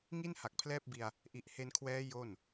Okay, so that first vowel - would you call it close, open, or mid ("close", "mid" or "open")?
close